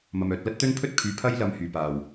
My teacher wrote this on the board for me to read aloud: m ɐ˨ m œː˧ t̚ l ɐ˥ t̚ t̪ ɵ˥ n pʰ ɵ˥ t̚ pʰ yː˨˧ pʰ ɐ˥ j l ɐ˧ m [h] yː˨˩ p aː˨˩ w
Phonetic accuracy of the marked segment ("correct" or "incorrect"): correct